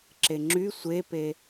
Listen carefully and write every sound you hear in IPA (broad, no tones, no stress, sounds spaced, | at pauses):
ǁ e ŋ͡ǁ y sʷ e p e